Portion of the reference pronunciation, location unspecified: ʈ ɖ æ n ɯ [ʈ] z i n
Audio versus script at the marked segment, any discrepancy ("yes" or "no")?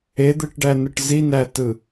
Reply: no